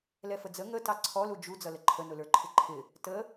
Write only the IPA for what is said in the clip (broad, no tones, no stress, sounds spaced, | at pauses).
l ɛ f ə d͡z ə ŋ ə t ɑ ǀʰ ɔ l u d͡ʒ u d͡z ʌ l ə ǃʰ ə n ʊ l ə˞ ǃʰ ɪ ǃʰ ɪ | t ə